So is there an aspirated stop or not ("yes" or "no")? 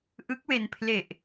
yes